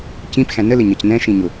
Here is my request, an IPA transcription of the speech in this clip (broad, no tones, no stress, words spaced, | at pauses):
cĩpxæ̃ nəlɪɲʌc nɛ̃ʃĩɲʊ